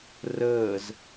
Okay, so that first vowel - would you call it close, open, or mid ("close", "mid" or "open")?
mid